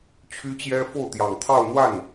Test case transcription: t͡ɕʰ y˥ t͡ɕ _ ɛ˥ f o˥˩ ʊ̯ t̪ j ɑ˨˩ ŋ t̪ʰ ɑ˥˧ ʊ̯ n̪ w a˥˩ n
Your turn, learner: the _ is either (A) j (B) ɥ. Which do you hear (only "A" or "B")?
A